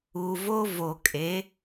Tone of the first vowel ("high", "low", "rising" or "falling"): low